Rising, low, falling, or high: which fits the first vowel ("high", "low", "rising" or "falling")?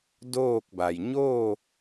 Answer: falling